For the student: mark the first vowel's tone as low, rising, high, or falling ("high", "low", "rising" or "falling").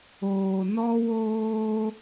low